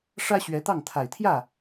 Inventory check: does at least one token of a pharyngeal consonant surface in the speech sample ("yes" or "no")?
no